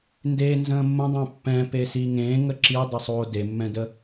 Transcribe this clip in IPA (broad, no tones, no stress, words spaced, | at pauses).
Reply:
ndenzə̃ː mːə̃dˤɛ̃ pːɛ̃pesi ŋẽːŋə ǁidˤəsˤoː demːɛ̃də